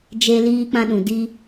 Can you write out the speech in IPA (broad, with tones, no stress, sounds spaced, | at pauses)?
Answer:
d͡ʒ e˦ l iː˦ k͡p ã˦ ɗ ũ˨ d i˦